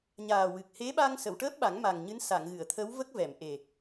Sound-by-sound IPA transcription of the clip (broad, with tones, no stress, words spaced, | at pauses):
ɲaː˨˩wɨ˨˩k̚ he˧˥ɓa˧ŋ sə˨˩˨wʈəː˦˥p̚ɓa˨˩˦ŋ ma˨˩ŋɲɨ˧˥n sa˨˩˨ŋɣɨ˨˩˨ə̯t̪ʰə˧˥w və˦˥k̚vɛ˨˩˨mʔe˨˩